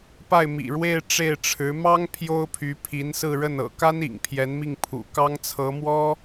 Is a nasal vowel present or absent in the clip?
absent